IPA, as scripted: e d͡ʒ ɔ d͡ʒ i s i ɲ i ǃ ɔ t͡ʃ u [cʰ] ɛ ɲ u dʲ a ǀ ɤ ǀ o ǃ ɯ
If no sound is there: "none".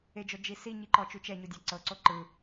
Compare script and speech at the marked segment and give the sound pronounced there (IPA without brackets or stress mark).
t͡ʃ